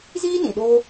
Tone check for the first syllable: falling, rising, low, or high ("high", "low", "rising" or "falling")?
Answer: high